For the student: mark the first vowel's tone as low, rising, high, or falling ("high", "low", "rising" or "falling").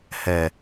low